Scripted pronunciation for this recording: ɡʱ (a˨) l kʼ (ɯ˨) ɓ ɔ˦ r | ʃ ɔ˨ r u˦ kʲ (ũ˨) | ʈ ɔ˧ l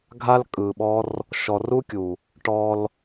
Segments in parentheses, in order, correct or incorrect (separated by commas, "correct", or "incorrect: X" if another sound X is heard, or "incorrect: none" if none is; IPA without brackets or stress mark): incorrect: a˦, correct, incorrect: u˨